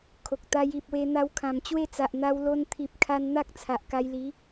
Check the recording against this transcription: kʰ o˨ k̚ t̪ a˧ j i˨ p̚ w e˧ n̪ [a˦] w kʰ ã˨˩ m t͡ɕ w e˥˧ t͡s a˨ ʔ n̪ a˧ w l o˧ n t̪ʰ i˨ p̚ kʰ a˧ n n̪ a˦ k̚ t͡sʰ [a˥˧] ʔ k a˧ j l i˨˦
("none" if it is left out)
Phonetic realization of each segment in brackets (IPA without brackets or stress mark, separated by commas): a˧, a˨